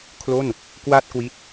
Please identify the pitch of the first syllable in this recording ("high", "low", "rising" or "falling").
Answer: falling